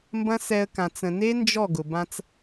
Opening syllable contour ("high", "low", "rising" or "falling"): high